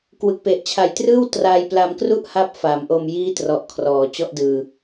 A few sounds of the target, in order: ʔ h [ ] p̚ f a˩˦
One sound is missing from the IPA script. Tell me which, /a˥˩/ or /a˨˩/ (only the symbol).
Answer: a˥˩